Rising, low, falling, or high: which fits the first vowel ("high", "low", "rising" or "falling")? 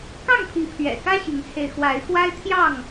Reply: falling